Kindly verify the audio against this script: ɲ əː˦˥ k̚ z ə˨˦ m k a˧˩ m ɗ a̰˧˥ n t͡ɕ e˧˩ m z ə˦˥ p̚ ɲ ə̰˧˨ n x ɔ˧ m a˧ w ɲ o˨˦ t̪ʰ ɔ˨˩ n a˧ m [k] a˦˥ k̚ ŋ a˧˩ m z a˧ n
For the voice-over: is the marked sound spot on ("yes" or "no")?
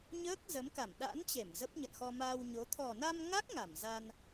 no